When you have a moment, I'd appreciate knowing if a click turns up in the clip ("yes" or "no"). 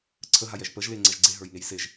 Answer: yes